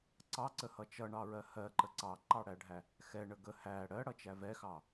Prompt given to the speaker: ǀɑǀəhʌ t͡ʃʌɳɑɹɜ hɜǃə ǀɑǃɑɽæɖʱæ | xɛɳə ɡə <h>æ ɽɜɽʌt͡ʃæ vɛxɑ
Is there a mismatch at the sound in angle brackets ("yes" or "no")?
no